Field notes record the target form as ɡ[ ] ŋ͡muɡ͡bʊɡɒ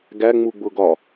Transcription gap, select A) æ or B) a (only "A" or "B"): A